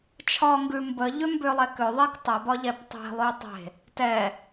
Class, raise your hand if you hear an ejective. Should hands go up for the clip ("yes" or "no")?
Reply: no